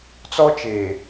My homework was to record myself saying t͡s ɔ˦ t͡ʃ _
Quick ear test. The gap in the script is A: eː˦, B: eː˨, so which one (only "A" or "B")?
B